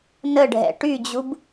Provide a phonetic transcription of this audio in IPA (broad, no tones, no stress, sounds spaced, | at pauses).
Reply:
n ə ɖʱ ɛ̰ ʈ y d͡ʑ u b